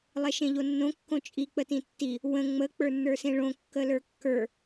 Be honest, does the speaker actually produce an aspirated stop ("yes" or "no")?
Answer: no